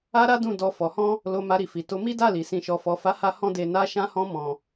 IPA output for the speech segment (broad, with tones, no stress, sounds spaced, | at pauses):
a˦ ɾ a˦ d ũ˦˨ d ɔ˧ f ɔ˨ h ɔ̃˧ | l o˧ m a˧ ɾ i˨ f i˨ t o˧ m i˦ d a˦˨ l i˨ s ĩ˨ ʃ ɔ˨ f ɔ˨ f a˨˦ h a˦ h ɔ̃˦ d e˧ n a˧ ʃ ã˧ h ɔ̃˧ m ɔ̃˨